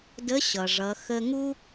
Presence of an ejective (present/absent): absent